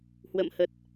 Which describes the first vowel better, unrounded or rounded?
unrounded